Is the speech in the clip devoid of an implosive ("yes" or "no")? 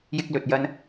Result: yes